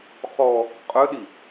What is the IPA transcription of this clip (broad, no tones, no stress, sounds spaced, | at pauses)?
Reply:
χ ɔ | qʼ œ ɗ i